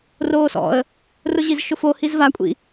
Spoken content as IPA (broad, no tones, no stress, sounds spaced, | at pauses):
r oː s ɔ̰ ə̯ | r ʊ ʑ i z ʃ ʊ f o h i z v a kʷʼ ḭ